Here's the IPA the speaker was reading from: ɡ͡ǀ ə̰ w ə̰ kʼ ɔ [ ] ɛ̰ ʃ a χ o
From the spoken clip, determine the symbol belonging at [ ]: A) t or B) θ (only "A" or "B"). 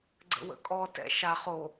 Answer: A